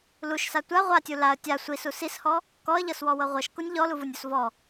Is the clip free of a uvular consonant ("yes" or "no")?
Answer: no